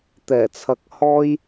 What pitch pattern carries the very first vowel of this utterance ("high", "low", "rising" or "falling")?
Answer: low